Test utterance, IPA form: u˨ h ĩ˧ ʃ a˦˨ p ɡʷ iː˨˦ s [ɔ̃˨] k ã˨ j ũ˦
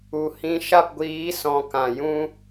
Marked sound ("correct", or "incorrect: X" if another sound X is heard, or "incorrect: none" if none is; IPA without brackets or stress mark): correct